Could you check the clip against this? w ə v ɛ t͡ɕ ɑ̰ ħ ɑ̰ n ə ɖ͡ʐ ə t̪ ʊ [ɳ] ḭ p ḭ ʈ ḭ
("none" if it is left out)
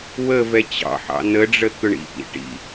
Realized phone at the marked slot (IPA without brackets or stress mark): ɳ